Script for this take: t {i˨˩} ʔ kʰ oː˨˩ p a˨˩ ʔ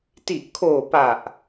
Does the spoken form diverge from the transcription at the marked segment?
no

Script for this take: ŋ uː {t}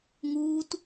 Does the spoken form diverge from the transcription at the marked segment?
no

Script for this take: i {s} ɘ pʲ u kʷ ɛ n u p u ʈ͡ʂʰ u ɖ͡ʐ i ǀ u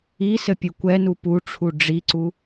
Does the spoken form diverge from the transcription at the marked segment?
no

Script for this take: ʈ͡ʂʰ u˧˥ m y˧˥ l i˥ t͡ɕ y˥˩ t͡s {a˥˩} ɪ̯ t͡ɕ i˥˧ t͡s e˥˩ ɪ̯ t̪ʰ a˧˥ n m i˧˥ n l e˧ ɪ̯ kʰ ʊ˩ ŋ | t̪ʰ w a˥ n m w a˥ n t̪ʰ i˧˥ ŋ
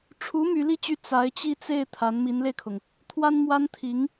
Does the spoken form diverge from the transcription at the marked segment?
yes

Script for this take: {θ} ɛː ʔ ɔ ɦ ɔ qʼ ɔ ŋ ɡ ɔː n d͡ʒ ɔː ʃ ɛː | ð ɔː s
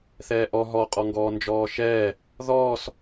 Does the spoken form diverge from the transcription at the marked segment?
no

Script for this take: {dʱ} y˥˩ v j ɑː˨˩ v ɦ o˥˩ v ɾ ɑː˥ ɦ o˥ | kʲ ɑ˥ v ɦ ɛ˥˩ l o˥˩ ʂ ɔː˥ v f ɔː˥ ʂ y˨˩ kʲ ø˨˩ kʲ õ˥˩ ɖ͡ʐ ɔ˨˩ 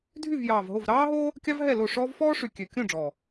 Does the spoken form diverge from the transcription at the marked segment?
no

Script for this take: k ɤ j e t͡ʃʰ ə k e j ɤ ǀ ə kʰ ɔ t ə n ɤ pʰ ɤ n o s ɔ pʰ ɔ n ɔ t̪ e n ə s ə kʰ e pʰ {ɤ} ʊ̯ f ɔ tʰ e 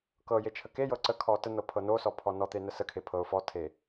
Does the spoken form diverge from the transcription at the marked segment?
no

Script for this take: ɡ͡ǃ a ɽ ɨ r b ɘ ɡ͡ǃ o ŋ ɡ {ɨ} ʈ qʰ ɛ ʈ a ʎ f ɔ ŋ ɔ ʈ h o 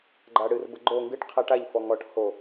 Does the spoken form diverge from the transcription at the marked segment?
no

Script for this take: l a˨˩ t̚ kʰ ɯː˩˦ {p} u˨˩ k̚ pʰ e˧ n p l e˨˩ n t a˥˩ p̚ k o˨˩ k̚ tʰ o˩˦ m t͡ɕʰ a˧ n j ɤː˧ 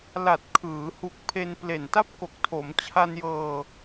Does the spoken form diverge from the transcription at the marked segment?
yes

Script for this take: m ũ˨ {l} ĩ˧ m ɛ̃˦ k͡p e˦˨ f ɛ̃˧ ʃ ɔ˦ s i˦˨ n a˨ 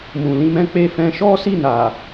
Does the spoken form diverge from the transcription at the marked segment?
no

